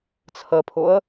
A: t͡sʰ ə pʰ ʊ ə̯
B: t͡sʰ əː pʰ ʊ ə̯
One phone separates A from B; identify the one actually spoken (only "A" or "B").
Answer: A